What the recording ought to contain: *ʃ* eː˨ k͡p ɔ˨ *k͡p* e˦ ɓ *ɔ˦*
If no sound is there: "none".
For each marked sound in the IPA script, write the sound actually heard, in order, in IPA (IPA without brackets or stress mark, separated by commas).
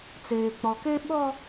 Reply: t͡s, k, ɔ˦